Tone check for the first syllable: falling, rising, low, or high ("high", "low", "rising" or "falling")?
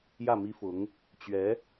falling